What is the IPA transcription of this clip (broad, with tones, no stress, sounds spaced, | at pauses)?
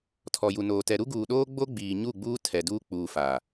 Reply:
tʰ ɔ˨ j u˨ n oː˨ t ɛ˨ ɾ u˦ ɡ uː˨ ɗ oː˦ ɡ͡b o˦ ɡ͡b iː˨ ɲ u˦˨ ɡ͡b uː˦ tʰ ɛ˨ d uː˦ k͡p uː˨ f a˨